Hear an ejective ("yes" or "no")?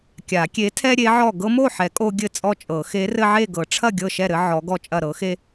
yes